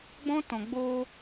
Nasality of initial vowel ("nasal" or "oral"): nasal